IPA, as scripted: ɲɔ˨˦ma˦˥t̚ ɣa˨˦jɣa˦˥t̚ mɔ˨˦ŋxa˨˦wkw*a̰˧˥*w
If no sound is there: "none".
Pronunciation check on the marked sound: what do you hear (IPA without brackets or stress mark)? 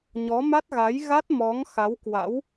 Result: a̰˧˥